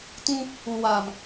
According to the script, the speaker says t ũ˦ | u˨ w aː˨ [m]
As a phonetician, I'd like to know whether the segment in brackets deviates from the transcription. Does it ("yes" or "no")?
no